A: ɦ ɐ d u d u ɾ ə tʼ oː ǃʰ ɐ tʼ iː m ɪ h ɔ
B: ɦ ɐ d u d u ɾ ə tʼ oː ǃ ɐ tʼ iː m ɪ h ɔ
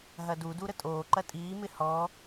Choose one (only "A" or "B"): B